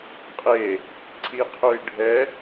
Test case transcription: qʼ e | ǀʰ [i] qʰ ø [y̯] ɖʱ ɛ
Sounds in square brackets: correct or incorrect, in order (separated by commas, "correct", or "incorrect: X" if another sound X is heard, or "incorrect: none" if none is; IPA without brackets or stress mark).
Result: correct, incorrect: i̯